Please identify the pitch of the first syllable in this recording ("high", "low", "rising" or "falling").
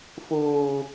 high